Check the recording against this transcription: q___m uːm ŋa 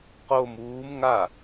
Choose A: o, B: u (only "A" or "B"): A